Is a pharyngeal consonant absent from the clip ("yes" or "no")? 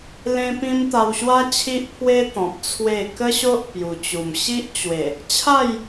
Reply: yes